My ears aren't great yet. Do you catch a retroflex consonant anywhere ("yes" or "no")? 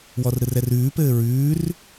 no